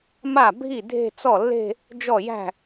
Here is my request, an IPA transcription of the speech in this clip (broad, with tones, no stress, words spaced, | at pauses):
ma˥˩ bʱi˥˩ dʱe̤˥˧t͡sɔ˥˩lːe̤˥˧ | d͡ʒɔ˥˩jæ̤˥˩